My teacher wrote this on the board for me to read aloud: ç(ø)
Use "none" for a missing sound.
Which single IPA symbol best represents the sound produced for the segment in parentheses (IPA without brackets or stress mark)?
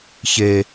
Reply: e